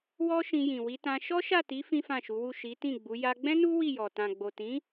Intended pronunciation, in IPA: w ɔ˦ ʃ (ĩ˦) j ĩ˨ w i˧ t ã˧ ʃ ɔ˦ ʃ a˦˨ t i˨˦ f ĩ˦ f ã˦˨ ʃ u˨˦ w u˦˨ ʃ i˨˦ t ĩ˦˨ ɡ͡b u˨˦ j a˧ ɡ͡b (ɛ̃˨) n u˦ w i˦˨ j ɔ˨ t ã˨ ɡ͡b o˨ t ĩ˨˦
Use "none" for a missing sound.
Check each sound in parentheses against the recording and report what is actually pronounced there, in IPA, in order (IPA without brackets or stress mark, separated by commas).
ĩ˧, ɛ̃˦